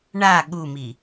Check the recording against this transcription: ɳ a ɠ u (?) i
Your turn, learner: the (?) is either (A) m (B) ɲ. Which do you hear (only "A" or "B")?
A